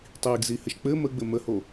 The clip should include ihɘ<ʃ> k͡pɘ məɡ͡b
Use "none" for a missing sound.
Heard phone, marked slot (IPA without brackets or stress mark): ʃ